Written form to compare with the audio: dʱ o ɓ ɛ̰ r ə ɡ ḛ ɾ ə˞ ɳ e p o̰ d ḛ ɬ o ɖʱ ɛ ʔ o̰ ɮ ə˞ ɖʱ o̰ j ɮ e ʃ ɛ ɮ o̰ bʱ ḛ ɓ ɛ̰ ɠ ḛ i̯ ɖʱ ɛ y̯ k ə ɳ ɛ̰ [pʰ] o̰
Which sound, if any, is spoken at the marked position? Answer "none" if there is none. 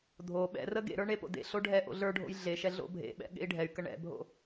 bʱ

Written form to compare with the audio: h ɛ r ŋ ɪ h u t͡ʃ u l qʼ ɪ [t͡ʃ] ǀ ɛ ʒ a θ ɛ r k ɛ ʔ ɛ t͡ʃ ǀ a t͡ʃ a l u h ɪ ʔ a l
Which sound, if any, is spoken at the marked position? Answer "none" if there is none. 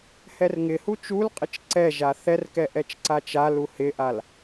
t͡ʃ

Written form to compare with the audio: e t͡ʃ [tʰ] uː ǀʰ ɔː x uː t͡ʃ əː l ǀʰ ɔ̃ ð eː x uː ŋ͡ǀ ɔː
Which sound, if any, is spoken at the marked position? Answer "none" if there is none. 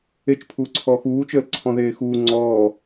pʰ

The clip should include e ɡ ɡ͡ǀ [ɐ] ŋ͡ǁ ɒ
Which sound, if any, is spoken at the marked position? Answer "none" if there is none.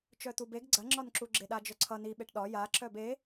ɐ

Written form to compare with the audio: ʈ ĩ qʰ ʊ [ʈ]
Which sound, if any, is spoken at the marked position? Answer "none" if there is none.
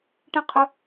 none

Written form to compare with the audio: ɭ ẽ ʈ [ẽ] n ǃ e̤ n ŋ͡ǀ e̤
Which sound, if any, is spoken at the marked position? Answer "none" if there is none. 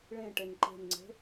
e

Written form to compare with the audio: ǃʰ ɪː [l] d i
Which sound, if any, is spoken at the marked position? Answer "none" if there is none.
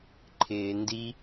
n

